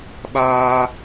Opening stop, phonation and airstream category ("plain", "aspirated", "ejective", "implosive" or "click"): implosive